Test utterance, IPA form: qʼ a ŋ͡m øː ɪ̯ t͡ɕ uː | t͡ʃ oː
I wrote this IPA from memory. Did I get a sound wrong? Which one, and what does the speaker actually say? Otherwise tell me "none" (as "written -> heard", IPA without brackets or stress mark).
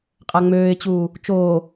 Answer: none